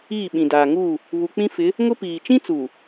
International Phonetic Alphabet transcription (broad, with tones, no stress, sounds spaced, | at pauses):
iː˦˨ ɓ ĩ˨ d aː˨ ŋ uː˦˨ | β u˨ k͡p ĩ˦ f ɪ˨˦ | ŋ ʊ˦ p iː˨ t͡ʃ ĩ˦ t͡s uː˨